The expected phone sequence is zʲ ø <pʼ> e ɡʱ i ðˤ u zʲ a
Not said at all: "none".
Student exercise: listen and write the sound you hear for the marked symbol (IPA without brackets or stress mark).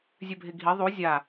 bʱ